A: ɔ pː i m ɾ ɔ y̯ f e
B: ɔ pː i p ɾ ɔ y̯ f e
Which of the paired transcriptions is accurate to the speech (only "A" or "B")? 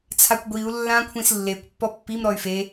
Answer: A